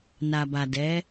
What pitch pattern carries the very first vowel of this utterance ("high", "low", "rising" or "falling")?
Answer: low